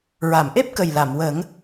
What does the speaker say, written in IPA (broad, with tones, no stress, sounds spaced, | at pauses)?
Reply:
ɹ a˨˩˨ m ʔ e˦˥ p̚ k ə˨˩ j l a˨˩˨ m w ə˨˩˦ ŋ